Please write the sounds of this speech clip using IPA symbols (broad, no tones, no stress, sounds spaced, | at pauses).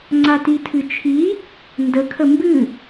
ŋ͡ǀ a t i tʰ ɨ t͡ʃʰ i | n d ə kʰ ə m b ɨ